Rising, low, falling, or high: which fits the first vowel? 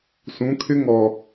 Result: rising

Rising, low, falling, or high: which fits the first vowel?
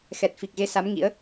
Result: low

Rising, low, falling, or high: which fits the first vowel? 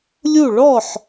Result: falling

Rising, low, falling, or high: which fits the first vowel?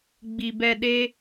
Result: low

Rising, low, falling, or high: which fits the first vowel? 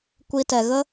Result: high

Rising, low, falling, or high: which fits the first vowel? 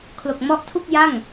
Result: low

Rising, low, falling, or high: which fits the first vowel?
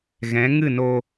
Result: rising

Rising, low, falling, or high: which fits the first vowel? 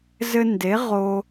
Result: high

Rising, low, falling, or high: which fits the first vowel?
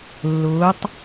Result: rising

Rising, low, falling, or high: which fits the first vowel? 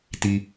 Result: low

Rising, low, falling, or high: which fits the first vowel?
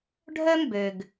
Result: high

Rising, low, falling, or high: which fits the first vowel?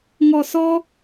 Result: low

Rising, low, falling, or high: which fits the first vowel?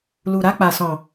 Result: low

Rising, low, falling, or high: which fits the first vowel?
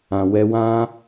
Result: low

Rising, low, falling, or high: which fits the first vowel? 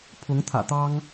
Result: rising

